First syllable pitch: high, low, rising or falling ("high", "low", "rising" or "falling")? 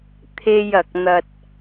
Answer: high